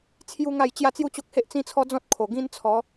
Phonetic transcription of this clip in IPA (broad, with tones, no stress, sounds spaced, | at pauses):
t͡sʰ j u˦ ŋ a˥˧ j t͡ɕ j a˥˧ t͡s j u˦ t͡ɕ o˦ k̚ h e˦ ʔ t͡s ĩ˦ t͡sʰ ɔ˦ d͡z ɔ̃˦ t̚ kʰ o˨˩ ɡ ĩ˦ n t͡sʰ ɔ˨˦